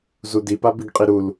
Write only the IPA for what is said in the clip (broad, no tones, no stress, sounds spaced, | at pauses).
z u d i p a b i ɡ qʼ i ɾ u l